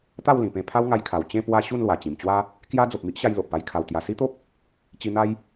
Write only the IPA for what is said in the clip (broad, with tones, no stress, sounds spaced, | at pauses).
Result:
t̪ a˥˧ w l ĩ˨˩ p ẽ˧ pʰ a˦ w ŋ a˧ j kʰ a˨˩ w t͡ɕ ẽ˥˧ p w a˥˧ ɕ u˥˧ n l w a˨˩ t͡ɕ ĩ˨˩ m t͡ɕ w a˦ | k j a˦ d͡z o˨ p̚ m i˦ ʔ ɕ a˧ j l o˨ ʔ p a˥˧ j kʰ a˨˩ w t̪ j a˨˩ s i˦ t̪ o˦ p̚ | t͡ɕ i˧ n̪ a˦ j